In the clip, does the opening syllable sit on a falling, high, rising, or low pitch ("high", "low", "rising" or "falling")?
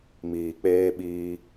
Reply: low